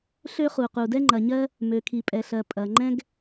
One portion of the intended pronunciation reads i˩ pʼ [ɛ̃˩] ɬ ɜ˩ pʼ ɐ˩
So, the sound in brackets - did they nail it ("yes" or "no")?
no